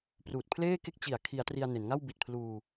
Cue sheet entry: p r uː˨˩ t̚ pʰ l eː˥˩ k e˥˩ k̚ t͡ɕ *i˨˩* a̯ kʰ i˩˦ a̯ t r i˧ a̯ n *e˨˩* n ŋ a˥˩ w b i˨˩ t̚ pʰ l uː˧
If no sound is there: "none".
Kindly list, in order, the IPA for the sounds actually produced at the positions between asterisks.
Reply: i˨˩, e˩˦

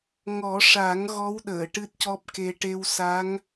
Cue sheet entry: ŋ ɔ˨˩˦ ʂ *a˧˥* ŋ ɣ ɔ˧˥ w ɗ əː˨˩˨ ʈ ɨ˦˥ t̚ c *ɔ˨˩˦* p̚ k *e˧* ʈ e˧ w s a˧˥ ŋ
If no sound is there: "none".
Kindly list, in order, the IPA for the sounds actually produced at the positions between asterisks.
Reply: a˨˩˦, ɔ˦˥, e˧

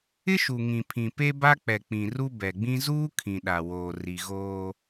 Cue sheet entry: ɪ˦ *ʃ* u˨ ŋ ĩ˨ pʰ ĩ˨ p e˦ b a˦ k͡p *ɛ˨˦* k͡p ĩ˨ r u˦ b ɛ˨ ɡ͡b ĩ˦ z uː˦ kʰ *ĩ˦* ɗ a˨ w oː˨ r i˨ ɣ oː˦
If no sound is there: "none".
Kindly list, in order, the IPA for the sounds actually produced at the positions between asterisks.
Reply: ʃ, ɛ˨, ĩ˨

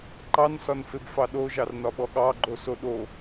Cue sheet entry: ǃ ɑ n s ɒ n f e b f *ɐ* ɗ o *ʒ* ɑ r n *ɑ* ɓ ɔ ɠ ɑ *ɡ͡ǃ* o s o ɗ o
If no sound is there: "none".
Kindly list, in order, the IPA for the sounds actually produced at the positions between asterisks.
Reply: ɑ, ʒ, ɒ, ɡ͡ǃ

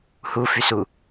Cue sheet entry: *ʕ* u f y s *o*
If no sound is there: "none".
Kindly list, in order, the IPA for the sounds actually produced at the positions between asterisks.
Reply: h, u

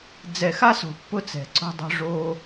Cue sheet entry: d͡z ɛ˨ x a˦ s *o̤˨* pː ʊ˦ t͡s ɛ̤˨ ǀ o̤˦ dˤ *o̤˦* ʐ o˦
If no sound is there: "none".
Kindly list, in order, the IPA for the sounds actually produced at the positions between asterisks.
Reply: o̤˨, o̤˦

